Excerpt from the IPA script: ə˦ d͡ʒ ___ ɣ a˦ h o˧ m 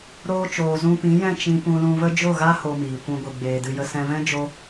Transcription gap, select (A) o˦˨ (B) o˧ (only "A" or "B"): A